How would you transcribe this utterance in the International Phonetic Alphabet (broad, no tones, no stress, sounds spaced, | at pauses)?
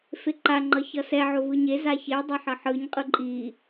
f e ǃ a ŋ͡ǃ ʌ ç ʌ s ɛ ʕ o v ɯ ɲ e z a ç e dˤ e ħ ʌ ħ ɯ ɲ qʼ ɯ ǃʼ i